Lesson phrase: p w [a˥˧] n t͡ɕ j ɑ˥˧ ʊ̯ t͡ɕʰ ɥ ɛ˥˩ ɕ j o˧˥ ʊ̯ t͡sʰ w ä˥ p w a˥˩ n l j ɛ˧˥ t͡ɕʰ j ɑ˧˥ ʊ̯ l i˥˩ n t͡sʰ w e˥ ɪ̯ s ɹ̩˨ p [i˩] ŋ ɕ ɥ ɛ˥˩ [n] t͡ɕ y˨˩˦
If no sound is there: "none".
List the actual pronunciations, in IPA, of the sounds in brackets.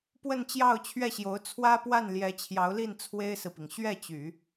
ə˥˧, i˩, none

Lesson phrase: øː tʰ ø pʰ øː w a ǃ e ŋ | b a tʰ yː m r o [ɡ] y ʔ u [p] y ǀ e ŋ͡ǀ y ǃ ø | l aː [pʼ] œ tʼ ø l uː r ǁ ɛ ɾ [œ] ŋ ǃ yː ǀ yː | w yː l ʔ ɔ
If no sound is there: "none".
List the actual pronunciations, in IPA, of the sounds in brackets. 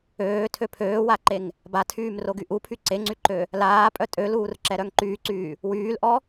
ɡ, pʰ, pʼ, œ

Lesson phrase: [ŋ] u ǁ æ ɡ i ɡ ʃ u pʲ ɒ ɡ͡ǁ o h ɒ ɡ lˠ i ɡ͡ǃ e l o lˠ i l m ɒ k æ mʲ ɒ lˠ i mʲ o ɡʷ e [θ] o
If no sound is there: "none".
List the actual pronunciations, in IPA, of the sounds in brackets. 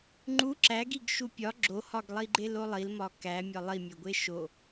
ŋ͡ǃ, ʃ

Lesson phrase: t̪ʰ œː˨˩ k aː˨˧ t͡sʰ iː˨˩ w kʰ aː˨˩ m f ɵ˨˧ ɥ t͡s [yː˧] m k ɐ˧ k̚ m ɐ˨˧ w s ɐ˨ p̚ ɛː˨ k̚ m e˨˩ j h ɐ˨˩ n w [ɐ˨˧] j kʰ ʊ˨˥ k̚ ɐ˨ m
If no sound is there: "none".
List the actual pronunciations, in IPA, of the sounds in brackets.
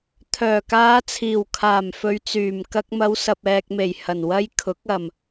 yː˨˩, ɐ˧

